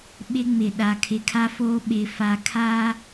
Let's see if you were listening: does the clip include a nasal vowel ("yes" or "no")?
no